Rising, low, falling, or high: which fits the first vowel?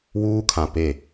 high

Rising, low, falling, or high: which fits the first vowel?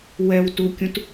low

